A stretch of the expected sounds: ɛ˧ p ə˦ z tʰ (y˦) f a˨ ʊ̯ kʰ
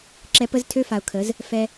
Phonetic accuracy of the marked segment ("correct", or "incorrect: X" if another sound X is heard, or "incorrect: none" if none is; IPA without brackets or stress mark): incorrect: ø˦